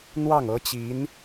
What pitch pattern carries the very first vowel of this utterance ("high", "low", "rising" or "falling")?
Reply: falling